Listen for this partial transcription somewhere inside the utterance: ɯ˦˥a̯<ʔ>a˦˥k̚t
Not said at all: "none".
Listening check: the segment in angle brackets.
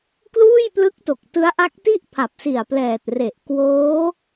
ʔ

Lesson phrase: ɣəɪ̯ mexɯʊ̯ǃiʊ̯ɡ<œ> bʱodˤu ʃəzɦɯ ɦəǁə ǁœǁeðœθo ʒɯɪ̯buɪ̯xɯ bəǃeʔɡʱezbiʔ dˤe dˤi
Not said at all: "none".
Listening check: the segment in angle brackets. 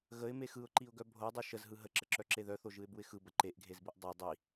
œ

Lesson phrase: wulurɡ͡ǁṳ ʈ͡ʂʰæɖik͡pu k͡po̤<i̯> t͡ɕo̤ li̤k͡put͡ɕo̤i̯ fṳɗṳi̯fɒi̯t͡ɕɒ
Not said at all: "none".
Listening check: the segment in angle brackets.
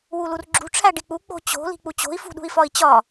none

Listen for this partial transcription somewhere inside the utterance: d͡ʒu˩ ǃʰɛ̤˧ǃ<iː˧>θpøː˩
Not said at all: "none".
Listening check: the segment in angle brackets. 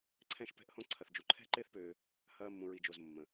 ɪː˧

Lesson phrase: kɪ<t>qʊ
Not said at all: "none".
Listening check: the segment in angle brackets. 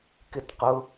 t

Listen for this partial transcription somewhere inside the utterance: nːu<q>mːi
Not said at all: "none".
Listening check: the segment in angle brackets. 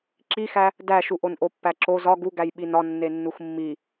x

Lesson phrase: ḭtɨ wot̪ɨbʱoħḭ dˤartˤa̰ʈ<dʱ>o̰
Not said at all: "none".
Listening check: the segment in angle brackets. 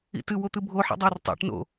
n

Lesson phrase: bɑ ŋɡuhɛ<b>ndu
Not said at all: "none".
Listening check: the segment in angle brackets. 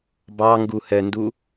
none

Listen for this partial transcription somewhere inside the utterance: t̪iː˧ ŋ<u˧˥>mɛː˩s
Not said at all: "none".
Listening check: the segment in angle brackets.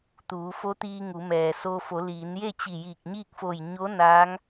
u˩˧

